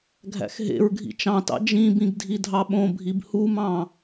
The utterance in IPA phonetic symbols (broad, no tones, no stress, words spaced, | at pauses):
ɡʱæ̰xɦḛɹɡʱḭ t͡ʃɑ̃tɑ̰ d͡ʒĩbĩɡ dʱidʱɑɓõbʱib humɑ̃